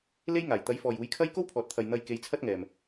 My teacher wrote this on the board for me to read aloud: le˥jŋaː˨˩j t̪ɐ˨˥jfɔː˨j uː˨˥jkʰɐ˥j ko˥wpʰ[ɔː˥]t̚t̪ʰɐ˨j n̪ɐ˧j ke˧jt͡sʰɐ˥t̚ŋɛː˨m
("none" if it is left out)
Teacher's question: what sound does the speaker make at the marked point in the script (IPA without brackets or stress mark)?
ɔː˨